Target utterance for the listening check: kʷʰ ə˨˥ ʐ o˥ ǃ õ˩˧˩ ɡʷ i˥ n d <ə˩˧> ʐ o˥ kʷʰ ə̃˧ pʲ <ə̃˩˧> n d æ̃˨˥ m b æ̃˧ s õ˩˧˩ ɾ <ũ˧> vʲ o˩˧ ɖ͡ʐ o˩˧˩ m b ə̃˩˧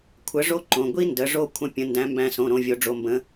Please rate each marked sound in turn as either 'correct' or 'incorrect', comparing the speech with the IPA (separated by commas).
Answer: correct, correct, incorrect